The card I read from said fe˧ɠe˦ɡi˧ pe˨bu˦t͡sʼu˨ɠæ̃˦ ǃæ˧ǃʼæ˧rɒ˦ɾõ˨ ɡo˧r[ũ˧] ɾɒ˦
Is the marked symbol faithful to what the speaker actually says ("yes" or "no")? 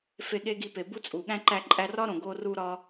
no